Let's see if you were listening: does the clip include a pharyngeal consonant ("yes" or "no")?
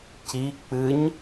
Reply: no